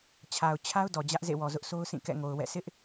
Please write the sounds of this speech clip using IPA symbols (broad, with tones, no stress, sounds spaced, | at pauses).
t͡ɕʰ a˨ ʊ̯ t͡ɕʰ a˦ ʊ̯ d ɔ˨ d͡ʑ ä˦ ʔ z ḛ˦˨ w ɔ˨ z ʊ˦ ʔ s o˦ ʊ̯ s ĩ˦˨ k ɛ̰˦˨ ŋ o˨ ʊ̯ w ɛ̰˦˨ sʰ ɪ˦ ʔ